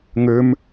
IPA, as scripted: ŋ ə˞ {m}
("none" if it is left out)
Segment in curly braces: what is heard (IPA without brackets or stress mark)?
m